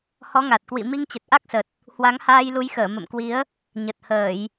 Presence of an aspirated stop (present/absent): absent